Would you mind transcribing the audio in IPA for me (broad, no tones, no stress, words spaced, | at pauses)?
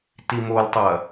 timoltˤɐ